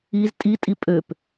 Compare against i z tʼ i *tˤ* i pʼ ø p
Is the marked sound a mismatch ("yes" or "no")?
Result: yes